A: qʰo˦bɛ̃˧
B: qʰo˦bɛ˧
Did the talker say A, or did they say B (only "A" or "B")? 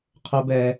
B